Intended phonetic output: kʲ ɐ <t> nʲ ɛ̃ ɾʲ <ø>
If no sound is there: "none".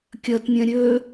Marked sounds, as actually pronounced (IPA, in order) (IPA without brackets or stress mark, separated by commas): t, ø